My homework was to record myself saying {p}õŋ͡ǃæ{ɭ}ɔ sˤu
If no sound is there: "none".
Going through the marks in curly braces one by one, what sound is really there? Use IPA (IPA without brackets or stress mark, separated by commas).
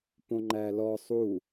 p, l